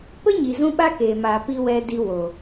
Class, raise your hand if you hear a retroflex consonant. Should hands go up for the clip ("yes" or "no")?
no